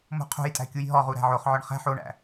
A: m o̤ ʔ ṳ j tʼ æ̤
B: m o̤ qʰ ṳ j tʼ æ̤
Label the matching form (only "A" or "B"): B